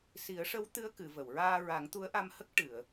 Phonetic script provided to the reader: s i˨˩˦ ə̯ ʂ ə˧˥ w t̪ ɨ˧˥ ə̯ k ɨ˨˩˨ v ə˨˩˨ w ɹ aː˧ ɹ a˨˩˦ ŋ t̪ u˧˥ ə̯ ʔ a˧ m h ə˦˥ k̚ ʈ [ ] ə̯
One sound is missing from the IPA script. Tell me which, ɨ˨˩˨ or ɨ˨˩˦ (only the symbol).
ɨ˨˩˨